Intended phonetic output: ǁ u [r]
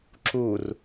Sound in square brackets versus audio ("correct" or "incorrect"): correct